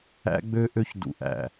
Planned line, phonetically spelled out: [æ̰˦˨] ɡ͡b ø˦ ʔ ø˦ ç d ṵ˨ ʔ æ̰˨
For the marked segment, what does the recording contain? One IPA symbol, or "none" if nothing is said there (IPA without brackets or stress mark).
æ̰˦